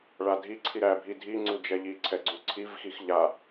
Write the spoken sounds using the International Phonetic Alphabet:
ɭadʱiǀʰi ɾæbʱi dʱi ŋ͡ǀud͡ʒɛʎiǀʰɛ ɡ͡ǀuǀʰivxix ʎa

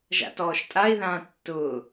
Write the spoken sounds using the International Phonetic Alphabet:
ʒa̰tɔːʃtʼai̯ðãː tːʊː

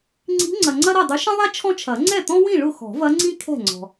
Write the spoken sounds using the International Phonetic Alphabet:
ŋ͡ǀi̤˧˥ ŋ͡ǀɐ˨ŋ͡ǀɐ˥ ɾɐ˥˨dˤʊ˧˥ ʃɐ̃˥ðˤɛ˥ t͡ʃʰɔ̃˥t͡ʃʰɐ˨˩˦ ŋ͡ǀɛ˥˨t̪ɔ̃˥wĩ˥˨ ɭʊ˥˨ xɔ̤˨˩˦vɐ˧˥ ŋ͡ǀĩ˥ kʰɛ̤˥˨ŋ͡ǀɔ̤˨

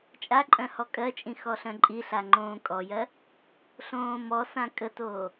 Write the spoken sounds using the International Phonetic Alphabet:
t͡ʃʼaǃʼœ̃ hɔkʼɜt͡ʃʼĩ xɔɬœ̃ǃʼiɬa ŋ͡ǃõːkʼɔjɜ | ɬõːmɔsã kʼətoː

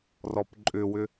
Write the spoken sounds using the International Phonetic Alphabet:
rɔpǃʼʏwʏ

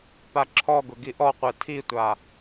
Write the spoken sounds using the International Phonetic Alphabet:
paǁʰɔɡʊ ɡiʔɔqʷɛ tʰitʷa

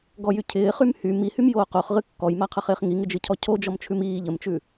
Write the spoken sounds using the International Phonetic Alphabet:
ɡɔjy cʰɪːχym hy mihymjoː qoχʁɨ kːɔjmaqʰəχɪːχ ŋiŋɪd͡ʒɨcʰɔ cʰod͡ʒɔmt͡ʃʰʉm iː ʎəmt͡ʃʉ

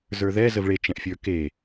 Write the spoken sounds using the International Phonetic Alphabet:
zə˞ðɛ zəvɭet͡ʃɛ̃ʔfʲə˞ ke

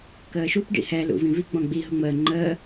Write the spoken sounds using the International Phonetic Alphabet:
kəːʃup ɖḭhɛ lṵvĩvi ɡ͡bɔ̃ɡ͡bi ɦʊŋ͡məː ŋ͡ǃəː

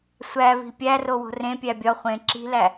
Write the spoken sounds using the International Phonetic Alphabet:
sʷæ vi̤pʲæro wo̤rẽpʲæ bʲɒ χʷẽ ǁi̤læ

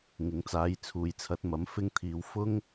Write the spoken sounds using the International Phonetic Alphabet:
ŋɪ˨˥ŋ t͡saː˨˧jt͡sʰuː˨jt͡sʰɐ˨˥t̚ mɐ˨˥mfɪ˥ŋt̪ʰiː˧w fʊ˥ŋ

